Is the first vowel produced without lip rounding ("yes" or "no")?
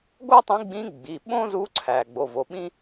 no